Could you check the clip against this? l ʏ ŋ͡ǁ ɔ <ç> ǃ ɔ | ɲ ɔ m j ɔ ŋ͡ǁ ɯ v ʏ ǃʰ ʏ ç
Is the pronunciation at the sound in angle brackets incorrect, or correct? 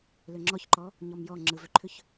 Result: correct